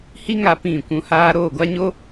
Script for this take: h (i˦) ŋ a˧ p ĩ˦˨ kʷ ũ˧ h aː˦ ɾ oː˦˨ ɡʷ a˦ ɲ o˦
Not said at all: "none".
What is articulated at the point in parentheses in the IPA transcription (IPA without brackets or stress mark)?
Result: i˦